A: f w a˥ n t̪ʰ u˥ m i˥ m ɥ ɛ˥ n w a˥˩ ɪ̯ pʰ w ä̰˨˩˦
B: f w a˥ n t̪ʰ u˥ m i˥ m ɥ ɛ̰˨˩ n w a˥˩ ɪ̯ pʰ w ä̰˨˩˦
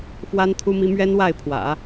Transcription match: A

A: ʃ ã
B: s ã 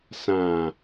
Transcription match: B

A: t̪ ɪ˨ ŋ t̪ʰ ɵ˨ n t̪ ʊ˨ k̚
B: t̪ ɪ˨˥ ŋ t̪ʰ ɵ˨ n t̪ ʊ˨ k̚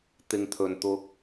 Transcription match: A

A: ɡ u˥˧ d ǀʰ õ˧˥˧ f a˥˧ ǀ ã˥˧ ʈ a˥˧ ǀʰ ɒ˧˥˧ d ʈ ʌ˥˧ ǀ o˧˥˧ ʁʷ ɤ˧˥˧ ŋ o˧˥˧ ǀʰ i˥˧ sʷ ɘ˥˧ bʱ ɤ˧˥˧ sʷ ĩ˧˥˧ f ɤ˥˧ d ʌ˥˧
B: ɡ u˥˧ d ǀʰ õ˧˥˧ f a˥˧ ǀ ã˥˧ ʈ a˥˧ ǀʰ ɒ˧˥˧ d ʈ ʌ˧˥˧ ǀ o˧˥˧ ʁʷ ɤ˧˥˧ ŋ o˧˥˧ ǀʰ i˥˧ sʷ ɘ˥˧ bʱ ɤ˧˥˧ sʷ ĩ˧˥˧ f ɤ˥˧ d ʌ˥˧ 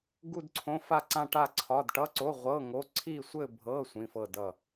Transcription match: B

